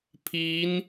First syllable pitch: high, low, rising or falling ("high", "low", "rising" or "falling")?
rising